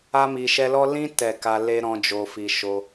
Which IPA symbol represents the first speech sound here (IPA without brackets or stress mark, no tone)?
a